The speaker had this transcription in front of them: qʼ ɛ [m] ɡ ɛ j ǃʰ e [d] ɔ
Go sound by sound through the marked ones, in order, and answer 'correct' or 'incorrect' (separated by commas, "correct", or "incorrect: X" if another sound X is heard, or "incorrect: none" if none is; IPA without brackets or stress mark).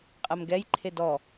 correct, correct